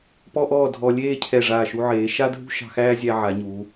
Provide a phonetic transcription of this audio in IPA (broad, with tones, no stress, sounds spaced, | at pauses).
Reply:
p ɔ˥ ʔ ɔː˥˧ dʱ ɔ˧ lʲ eː˥˧ cʰ ɛ˧˩ ʐ aː˧˩ ʃ u˧ ʕ eː˩˧ ʃ a˥ dʱ ṳ˥ ʃ ɑ̤˧ x æː˥ zʲ æ˧ ʕ a˩˧ ɲ u˩˧